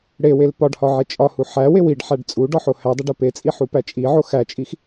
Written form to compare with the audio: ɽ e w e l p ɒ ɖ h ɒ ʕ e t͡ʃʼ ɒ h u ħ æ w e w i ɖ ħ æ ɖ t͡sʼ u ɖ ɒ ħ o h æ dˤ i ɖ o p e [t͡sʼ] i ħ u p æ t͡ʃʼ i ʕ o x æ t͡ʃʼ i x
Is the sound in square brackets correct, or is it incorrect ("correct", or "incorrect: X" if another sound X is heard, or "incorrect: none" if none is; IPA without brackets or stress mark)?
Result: correct